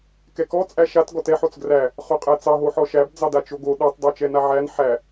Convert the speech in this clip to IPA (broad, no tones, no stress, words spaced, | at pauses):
kɛkɔ t͡sʼæʃat ɡɔtɛ ħot͡sɡræ | χoqʼæt͡sɑ ɦoħɔʃæb d͡zɑdat͡ʃoɡo ɗɛtˤ dˤot͡ʃɛnaʕæn ħæ